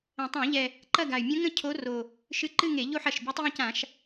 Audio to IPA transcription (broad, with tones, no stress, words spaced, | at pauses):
ə̃˨˩tˤã˧˩˧ʎɛ˨˩ | ǃɐ˥˧ɡa˨˩y̯ mʲə̃˧˥ŋə̃˥˧ cʰo˧˥ro˨˩ | ʃɨ˧˥ǃɨ˥˧ŋe˧˩˧ ʎo˥˧ħɐ˨˩ʃ bʲɛ˧˥tˤjə̃˥˧cã˧˩˧ʃ